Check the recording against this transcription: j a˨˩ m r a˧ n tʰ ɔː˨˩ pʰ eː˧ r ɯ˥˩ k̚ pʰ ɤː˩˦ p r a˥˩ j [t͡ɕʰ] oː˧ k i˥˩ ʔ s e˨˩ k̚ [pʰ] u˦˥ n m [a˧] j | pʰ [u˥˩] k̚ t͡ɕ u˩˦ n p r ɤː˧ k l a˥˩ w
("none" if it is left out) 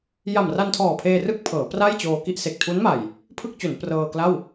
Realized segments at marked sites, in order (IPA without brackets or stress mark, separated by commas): t͡ɕ, tʰ, a˨˩, ɯ˥˩